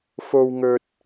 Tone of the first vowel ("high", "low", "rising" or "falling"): low